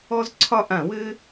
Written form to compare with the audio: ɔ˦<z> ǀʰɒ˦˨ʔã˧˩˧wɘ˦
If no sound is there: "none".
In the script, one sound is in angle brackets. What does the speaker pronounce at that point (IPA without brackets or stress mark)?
z